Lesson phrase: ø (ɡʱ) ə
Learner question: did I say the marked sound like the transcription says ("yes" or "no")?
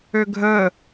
yes